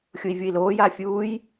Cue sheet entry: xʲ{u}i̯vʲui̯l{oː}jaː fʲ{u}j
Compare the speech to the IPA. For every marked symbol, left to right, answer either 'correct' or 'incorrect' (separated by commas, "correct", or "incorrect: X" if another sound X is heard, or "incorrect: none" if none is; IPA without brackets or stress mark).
correct, correct, incorrect: uː